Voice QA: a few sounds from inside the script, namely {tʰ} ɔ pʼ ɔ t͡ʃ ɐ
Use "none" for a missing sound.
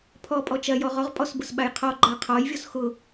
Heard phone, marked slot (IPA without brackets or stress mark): pʰ